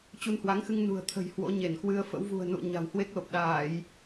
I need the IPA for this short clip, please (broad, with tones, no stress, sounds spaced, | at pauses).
t͡ɕ u˧ n h w a˨˦ ŋ x ɨ˧ ŋ n ṳ˨˩ ə̯ t̪ʰ ə̤˨˩ j h w o̰˧˥ ɲ e˧˩ n k w ɨ˧ ə̯ f ə̰˧˥ w v ṳ˨˩ ə̯ n ṵ˧˨ ə̯ ɲ a̤˨˩ w h w e˦˥ k̚ l o˨˩ p̚ ɗ aː˧˩˨ j